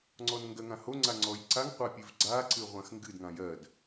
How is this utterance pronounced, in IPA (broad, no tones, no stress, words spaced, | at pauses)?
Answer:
ŋ͡ǀɔnŋɡɜŋãho ŋ͡ǀaŋ͡ǀɔjǀaŋ qʷapʲɨvɡ͡ǀa ǀɨʁʷãxŋɡɨd ŋãjɜd